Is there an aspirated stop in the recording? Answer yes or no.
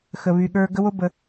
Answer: no